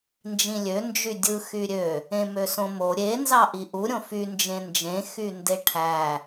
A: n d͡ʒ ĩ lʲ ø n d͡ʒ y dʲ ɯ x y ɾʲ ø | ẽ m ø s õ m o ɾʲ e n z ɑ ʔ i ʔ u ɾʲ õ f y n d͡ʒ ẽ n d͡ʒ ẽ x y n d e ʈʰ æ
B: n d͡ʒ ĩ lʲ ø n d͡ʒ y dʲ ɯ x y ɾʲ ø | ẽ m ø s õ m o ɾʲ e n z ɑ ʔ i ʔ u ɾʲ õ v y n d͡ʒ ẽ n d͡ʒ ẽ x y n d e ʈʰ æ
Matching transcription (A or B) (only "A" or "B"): A